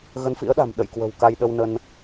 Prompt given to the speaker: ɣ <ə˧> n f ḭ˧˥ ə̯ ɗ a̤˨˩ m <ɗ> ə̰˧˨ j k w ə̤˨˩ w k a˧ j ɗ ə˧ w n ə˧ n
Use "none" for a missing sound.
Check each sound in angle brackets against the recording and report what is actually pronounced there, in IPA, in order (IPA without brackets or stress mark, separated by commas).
ə˨˦, ɗ